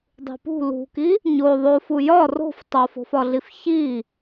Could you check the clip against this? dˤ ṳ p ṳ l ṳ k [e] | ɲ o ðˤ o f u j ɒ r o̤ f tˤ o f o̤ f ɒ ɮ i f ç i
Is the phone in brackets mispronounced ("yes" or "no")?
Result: yes